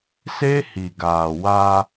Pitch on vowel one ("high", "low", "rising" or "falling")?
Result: high